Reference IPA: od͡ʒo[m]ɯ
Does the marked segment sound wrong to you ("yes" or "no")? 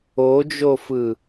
yes